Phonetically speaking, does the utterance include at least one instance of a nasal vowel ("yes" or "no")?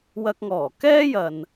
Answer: no